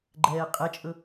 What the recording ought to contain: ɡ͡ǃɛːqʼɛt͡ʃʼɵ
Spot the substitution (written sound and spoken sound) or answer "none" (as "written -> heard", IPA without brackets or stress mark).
none